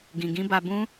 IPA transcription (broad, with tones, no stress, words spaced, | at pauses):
ɡĩ˨ɡĩ˦ba˧bũ˦